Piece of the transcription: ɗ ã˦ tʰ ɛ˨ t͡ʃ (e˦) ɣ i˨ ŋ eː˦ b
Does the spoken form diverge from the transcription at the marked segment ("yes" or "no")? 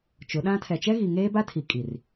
yes